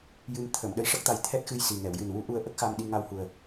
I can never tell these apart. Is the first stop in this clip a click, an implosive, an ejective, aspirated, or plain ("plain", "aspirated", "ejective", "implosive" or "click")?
aspirated